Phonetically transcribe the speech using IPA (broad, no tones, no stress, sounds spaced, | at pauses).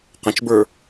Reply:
q ə̃ t͡ʃ b ə˞